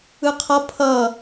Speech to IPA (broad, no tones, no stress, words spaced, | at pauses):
ɯqʰʌ pʰʌ